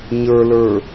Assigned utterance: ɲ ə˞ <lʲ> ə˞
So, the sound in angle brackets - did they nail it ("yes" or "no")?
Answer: no